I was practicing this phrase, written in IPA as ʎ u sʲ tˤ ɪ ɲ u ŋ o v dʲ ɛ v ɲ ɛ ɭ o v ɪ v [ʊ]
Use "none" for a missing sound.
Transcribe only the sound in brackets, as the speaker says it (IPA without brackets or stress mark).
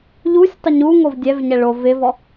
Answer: ɔ